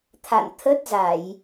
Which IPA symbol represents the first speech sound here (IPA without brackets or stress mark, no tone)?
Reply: t̪ʰ